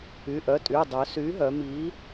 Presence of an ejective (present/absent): present